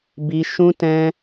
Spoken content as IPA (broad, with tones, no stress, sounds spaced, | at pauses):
b i˧ ʃ ũ˦ t ɛ̃˦